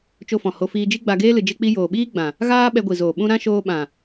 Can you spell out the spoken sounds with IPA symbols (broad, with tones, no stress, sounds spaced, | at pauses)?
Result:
t͡ʃ o˧ f ɔ̃˨ h o˧ f iː˧ d͡ʒ i˦ ɡ͡b a˧ ɡ eː˦ l ɨ˧ d͡ʒ e˦ k͡p i˦ j oː˨ ɓ iː˦ ɡ͡b ã˨ | ɣ aː˦ ɓ ɛ˧ ɡʷ i˨ z oː˨ ɓ ũ˧ ɾ ã˦ ʃ oː˧ ɓ ã˨